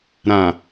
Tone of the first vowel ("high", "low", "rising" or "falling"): low